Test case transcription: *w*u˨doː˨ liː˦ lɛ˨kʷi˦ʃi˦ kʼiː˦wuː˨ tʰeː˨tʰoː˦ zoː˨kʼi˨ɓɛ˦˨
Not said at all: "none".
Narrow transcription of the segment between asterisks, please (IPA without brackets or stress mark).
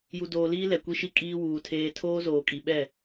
j